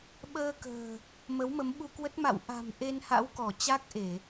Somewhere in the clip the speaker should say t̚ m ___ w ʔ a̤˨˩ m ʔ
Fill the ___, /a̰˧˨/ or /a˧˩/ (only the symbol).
a̰˧˨